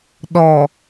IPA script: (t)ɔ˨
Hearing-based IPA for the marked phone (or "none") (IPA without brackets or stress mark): ɗ